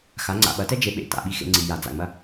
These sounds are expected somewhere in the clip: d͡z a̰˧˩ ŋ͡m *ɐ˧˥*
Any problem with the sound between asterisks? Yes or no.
yes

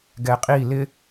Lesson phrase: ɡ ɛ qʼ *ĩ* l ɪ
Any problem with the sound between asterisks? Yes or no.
yes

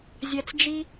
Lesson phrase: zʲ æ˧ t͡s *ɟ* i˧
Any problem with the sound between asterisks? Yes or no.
yes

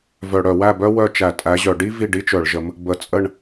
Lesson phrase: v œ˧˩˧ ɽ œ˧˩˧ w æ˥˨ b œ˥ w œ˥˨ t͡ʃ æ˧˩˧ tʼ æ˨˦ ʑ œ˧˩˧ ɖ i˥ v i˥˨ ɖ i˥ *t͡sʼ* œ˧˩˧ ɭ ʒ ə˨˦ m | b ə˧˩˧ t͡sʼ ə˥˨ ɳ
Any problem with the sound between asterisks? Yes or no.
yes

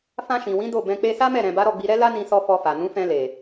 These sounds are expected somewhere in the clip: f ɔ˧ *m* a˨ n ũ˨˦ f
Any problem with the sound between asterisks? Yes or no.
yes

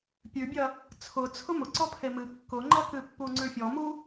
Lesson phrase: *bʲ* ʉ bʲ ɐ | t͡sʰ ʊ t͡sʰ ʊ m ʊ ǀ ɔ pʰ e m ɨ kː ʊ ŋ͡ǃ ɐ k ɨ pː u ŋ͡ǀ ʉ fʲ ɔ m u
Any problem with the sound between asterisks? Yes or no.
yes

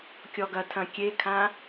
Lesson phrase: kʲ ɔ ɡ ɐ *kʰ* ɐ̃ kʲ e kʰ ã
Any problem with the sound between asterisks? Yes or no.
yes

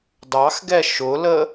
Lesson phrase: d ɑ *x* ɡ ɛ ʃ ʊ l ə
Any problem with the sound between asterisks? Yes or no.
no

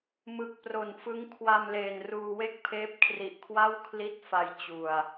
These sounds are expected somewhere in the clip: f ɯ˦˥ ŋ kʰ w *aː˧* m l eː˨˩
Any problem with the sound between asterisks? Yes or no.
yes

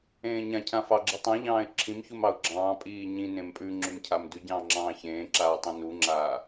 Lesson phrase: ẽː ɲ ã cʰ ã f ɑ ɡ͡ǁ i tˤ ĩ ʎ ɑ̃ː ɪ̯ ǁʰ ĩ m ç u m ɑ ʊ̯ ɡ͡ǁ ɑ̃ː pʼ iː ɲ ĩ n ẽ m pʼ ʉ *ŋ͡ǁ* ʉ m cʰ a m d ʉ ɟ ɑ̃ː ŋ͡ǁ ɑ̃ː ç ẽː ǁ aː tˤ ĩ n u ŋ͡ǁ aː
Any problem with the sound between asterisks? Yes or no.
no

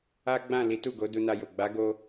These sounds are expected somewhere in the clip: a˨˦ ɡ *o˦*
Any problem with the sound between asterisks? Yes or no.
yes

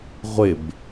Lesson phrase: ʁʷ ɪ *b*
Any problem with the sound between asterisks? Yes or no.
no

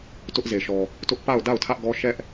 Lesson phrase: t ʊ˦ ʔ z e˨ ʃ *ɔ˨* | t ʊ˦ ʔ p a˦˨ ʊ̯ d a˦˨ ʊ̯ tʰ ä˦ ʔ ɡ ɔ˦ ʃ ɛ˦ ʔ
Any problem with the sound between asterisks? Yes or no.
no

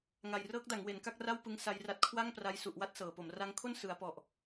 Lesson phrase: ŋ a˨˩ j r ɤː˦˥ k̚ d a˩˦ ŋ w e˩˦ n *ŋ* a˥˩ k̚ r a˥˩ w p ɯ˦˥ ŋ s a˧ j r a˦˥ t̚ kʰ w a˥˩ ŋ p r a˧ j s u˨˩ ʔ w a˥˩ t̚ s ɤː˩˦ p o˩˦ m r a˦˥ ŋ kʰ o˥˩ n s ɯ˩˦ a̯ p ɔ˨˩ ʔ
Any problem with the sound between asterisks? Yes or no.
yes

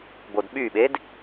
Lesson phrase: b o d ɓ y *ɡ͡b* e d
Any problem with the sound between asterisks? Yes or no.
yes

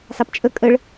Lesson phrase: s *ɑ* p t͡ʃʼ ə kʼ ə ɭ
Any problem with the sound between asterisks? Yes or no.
no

